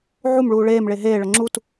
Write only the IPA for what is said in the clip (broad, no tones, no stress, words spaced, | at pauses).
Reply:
ʕumɭuː ɭeːmɭe ɦeːɭɤ ŋ͡ǁut